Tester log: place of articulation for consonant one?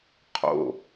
uvular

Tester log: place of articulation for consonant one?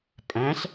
labial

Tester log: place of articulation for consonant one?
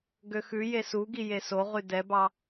velar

